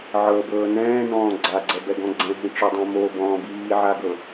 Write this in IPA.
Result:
ʕ ɤ b ɤː n ɛ̃ː n ɔ̃ː ɡ͡ǀ a ɡ͡ǀ ɛ b ɛ ɡ ɔ̃ ɡ͡ǀ ɛ̃ ɦ ĩ ʈ͡ʂ o dˤ ã m o b ɔ̃ː b iː ʕ a ɡ ɤ

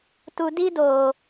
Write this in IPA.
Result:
t u˧ d i˦ d oː˨

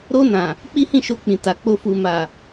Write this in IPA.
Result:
ɾ o˧ n ã˨ | k͡p i˦ h ĩ˦˨ ʃ o˧ k͡p ĩ˨ t a˨ k͡p o˧ f u˨ m a˨

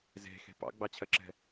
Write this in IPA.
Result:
z e̤ x e̤ p ɑ̰ ɡ͡b ɑ t͡ɕʰ ɜ ǁ ɛ̤

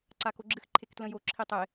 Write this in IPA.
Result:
ǀ a k o ɡ͡ǁ ɨ x ǃʰ e k t l ə̃ j o ǁʰ i tˤ e

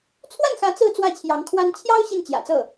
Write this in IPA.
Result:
t͡sʰ w a˥˩ n x ä˧˥ t͡s ɹ̩˥˧ t͡s w ä˥˩ t͡ɕʰ j ɑ˧˥ ŋ kʰ w a˥ n t͡ɕʰ j ɑ˥ ʊ̯ ɕ i˥˩ n t͡ɕ j ä̰˨˩ t͡s ɤ˥˩

